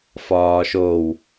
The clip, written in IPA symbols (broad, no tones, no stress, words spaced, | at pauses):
fɒːʃow